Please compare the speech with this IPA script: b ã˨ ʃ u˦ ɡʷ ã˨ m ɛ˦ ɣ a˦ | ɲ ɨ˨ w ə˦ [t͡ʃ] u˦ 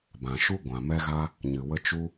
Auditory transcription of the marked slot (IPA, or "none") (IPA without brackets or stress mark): t͡ʃ